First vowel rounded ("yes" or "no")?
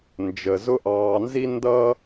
no